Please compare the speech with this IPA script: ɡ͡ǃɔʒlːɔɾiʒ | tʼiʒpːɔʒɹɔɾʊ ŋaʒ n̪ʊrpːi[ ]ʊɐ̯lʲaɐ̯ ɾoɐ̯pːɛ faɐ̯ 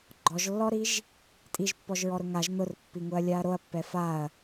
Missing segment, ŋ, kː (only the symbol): ŋ